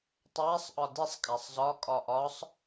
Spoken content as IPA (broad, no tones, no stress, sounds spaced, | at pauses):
tˤ æ sˤ ʔ ɒ d i sˤ kʼ æ sˤ z ɒ kʼ ɒ ʔ ɒ sˤ